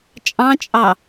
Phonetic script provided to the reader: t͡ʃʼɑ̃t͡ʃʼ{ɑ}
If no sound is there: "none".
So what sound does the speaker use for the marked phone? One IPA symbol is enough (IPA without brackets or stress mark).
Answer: ɑ